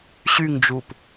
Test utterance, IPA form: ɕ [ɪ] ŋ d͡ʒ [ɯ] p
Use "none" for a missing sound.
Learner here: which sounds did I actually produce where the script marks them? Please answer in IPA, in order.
y, u

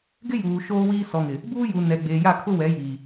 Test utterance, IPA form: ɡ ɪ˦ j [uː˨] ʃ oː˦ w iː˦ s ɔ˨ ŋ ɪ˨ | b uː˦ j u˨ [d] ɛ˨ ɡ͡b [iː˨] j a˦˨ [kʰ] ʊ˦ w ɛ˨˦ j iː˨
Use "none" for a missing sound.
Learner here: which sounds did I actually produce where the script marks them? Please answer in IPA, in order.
uː˨, n, eː˨, kʰ

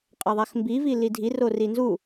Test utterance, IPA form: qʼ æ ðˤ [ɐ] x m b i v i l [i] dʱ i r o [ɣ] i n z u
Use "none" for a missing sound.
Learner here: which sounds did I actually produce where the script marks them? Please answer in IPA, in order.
æ, i, r

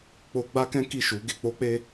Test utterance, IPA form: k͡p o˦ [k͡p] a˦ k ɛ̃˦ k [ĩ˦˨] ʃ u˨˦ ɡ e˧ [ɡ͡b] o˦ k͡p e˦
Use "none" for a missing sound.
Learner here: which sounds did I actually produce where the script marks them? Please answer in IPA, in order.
ɡ͡b, i˦˨, k͡p

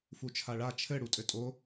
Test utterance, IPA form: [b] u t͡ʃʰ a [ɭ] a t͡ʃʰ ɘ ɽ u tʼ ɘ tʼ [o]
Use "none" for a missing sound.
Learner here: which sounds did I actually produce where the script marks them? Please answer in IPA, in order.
f, ɭ, o

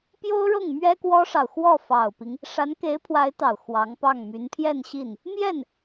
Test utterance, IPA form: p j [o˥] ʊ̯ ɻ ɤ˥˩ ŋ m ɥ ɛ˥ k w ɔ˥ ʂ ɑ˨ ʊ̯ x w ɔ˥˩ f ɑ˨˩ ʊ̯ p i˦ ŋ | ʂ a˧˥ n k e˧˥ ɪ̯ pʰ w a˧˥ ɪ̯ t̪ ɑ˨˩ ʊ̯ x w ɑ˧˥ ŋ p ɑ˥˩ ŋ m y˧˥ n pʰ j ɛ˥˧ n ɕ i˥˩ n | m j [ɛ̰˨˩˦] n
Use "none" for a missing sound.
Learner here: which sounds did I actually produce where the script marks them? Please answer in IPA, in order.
o˥, ɛ˥˩

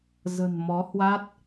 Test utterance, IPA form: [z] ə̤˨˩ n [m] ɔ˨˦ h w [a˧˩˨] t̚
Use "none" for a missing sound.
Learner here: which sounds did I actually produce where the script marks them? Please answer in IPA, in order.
z, m, a˦˥

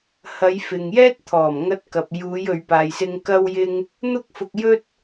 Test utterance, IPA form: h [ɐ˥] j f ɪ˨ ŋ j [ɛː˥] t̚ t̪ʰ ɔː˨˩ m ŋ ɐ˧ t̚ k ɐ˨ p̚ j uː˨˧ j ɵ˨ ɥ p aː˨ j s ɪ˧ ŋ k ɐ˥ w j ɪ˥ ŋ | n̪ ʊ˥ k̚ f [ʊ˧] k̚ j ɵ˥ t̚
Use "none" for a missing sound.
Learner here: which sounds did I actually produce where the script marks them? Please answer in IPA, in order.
ɐ˨˧, ɛː˥, ʊ˧

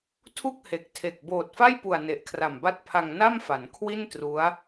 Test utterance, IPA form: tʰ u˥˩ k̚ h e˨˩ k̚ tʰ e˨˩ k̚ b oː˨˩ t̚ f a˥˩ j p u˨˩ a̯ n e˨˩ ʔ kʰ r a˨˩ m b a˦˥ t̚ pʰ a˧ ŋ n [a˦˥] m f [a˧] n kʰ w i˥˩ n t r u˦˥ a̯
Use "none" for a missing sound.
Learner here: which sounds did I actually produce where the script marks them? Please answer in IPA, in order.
a˥˩, a˩˦

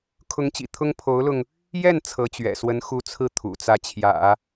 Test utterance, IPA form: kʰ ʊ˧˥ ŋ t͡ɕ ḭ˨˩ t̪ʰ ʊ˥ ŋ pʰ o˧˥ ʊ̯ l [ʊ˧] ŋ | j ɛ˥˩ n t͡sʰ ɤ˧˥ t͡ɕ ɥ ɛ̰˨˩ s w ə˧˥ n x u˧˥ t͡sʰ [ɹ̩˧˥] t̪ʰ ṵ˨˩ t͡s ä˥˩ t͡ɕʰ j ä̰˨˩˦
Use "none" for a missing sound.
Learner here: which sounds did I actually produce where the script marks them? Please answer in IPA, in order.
ʊ˧, ɹ̩˥˩

